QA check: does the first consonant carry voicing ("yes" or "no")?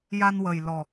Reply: yes